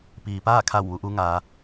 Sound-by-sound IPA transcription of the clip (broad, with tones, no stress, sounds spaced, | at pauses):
p iː˩ p aː˥˨ kʰ a˧˩ w ʋ u˩˧ ʔ u˧˥ ŋ aː˩˧